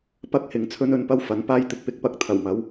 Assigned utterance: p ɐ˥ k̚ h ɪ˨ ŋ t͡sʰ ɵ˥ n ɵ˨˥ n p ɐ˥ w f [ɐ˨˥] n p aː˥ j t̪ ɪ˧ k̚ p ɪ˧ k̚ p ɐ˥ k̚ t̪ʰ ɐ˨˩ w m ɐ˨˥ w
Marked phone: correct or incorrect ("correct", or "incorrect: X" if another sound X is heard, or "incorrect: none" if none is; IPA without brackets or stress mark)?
correct